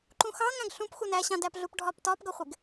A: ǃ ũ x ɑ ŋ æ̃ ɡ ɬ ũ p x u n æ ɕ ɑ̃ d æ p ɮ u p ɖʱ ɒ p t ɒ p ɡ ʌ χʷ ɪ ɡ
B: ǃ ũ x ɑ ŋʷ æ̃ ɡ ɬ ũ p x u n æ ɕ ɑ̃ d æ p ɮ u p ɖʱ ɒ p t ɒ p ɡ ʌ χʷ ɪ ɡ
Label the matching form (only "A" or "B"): A